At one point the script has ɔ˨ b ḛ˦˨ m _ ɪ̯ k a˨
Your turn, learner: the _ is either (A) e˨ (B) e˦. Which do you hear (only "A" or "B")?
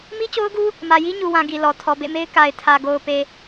B